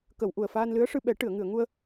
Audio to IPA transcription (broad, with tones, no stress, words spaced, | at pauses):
kə˨˩˨w ʔu˨˩ə̯faː˧nlɨ˧˥ə̯ʂɨ˧ ɓɛ˨˩˦ʈɨ˨˩˨ə̯ ŋɨ˨˩˨ə̯ŋu˧ə̯